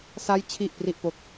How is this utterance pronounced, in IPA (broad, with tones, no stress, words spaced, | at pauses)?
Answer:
sa˦˥jt͡ɕʰi˨˩ʔpri˨˩ʔpo˨˩k̚